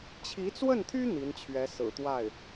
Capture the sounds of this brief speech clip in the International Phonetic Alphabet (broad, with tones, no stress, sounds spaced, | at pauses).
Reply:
t͡ɕʰ i˧˥ t͡s w ə˥˩ n t̪ʰ y˥ n̪ i˧˥ n t͡ɕʰ ɥ ɛ˧˥ s ɹ̩˨˩ t̪ w a˥˩ ɪ̯